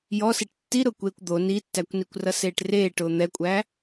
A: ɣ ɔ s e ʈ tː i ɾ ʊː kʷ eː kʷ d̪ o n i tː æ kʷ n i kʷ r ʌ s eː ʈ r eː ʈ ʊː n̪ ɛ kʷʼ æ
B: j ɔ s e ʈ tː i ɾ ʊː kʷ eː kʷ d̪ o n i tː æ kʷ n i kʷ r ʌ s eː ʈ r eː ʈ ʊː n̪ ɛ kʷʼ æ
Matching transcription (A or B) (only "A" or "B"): B